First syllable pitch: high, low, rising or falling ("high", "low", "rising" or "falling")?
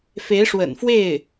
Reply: rising